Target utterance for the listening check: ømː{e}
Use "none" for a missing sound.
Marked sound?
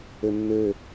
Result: ø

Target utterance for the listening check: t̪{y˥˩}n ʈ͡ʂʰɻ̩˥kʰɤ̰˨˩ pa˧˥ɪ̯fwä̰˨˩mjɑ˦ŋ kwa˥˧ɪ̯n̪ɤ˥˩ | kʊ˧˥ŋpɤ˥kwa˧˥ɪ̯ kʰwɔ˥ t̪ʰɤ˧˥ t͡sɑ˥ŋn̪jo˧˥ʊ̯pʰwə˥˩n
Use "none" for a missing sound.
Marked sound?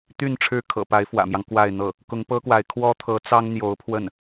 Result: y˥˩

